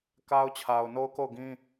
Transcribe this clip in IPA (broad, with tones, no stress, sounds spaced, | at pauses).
k a˦ ʊ̯ t͡ɕʰ a˨ ʊ̯ n o˦ ʊ̯ k o˦˨ ʊ̯ ɡ ĩ˦